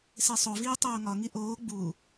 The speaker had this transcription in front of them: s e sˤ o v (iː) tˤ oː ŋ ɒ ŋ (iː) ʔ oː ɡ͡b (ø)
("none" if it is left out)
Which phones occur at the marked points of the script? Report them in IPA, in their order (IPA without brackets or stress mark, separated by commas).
iː, i, u